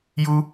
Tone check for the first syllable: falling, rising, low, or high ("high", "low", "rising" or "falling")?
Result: high